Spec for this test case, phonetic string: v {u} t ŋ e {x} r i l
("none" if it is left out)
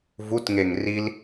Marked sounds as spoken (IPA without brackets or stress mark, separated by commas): u, ŋ